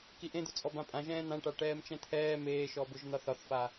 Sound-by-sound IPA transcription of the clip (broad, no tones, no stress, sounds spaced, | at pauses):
k i ʔ ẽ d̪ ʊ t͡sʼ ɔ b ã pʼ ã ʒ ɛ̃ː n̪ ã ʈ a ʈ ɛː m t͡ʃ ɛ̃ t̪ʰ ɛː m eː ʃ ɔ b ʊ ʒ n̪ ɒ θ ɒ θ f a